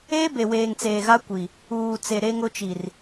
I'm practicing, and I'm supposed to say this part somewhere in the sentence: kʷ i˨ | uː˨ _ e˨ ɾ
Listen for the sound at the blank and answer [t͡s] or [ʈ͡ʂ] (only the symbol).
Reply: t͡s